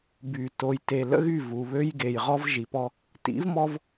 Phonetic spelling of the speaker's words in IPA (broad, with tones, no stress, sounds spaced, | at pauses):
b y˨ t o˨ j t e˨ l ə̰˦ ɣ y˦˨ v u˨ β ø˦ j ɡ e˨ j ʁ ɔ˦ v ʒ i˨ p ɔ˦ | t ḭ˨˦ v m ɔ˦ v